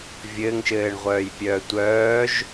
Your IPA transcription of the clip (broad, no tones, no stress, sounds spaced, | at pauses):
vʲ ɘː ŋ ʃ ɘː ɳ ʁʷ œː j pʲ œː tʷ œː ʒ